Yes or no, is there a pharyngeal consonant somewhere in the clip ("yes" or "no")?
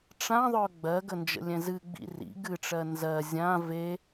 no